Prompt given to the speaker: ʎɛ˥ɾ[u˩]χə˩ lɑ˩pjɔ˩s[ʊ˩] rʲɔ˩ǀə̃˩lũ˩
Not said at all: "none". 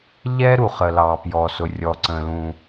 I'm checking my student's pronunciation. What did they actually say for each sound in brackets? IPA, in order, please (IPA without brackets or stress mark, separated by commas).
u˩, ʊ˩